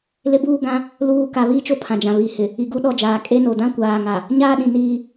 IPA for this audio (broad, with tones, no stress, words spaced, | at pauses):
lɪ˦buː˦ ɡã˦ | luː˦˨ ka˨βi˦ t͡ʃo˦pʰã˨d͡ʒã˨βi˨˦ hɪ˨ | i˨ ɡu˦ ɗɔ˦˨d͡ʒaː˨ kʼe˦no˨ dã˦kʷaː˨ŋa˨ | ɲaː˦ɗĩ˨ niː˦